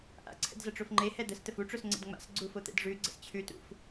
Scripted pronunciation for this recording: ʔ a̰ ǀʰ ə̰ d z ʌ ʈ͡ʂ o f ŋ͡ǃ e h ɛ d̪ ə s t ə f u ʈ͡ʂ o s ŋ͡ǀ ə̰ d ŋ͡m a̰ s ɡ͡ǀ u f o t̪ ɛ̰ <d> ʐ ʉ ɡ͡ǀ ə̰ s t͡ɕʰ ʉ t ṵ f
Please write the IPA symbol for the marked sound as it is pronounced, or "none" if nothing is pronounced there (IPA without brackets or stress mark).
d